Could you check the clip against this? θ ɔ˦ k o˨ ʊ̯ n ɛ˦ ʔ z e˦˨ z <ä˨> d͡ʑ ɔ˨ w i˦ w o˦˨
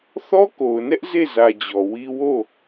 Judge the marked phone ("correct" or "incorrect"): correct